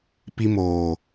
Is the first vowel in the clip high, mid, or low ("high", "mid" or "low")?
high